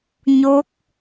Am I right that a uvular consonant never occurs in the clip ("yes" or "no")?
yes